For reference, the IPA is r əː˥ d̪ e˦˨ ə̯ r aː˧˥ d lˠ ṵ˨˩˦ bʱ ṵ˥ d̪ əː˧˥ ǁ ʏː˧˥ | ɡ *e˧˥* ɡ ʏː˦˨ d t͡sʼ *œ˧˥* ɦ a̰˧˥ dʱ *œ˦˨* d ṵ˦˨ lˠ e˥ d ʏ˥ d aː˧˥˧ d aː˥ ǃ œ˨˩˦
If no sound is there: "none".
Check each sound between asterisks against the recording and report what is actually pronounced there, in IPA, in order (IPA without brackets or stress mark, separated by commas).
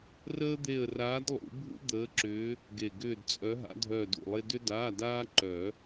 e˨˩, œ˧˥, œː˦˨